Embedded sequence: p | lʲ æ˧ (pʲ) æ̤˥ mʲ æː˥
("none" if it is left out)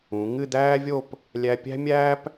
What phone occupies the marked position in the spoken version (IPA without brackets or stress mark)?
pʲ